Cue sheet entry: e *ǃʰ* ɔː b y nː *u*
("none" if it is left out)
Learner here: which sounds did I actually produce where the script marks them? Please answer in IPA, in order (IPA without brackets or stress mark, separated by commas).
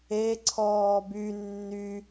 ǀʰ, y